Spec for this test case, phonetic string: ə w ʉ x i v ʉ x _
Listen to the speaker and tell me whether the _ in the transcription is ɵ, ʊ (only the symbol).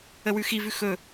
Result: ɵ